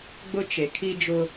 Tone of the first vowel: high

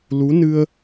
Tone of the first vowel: rising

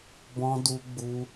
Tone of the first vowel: high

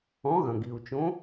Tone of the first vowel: rising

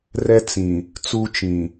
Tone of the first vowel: high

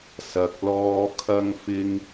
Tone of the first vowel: low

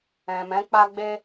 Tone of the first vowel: low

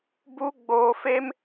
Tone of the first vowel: high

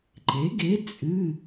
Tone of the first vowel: rising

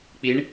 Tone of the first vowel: rising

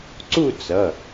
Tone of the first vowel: falling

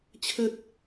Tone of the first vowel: high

